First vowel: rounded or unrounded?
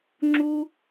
rounded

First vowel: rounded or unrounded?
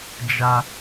unrounded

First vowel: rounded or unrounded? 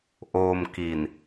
rounded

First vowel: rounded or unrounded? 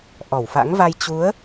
rounded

